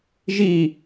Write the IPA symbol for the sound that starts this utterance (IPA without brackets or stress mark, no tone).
ʒ